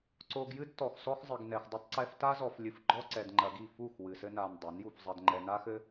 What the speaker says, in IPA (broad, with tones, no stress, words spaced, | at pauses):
ǀo˧ɡjɨ˦d tɔ˧xsɔ˦x zˤɘ˧ɡnɛ˧x dˤɐ˧tˤǀɛ˧f ta˦zɔ˧f lʲɨ˧f ɡ͡ǃɔ˦ǀɛ˧d ŋ͡ǃɐ˧ɡi˦˨ fu˦˨x wɨ˧sɘ˦na˧n dˤa˨˦nju˧fzˤɐ˧d ŋ͡ǃɛ˧na˦xɘ˦